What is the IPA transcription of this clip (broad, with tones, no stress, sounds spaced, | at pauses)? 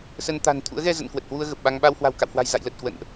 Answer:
s ə˧ n t̪ a̤˨˩ n t̪ʰ ṵ˧˥ ə̯ ɣ ɛ˧ z ə̰˧˨ n k w ə˨˩ t̚ h w u˧ ə̯ ɣ ə˨˩ p̚ ɓ a˧ ŋ ɓ a˧ w h w a̤˨˩ w k a̰˧˨ w h w a̤˨˩ j z a̰˧˨ j l ə˨˩ t̚ k w ə̰˧˨ n ʔ